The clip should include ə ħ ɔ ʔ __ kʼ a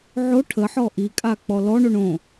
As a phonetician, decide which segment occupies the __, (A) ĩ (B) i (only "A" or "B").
B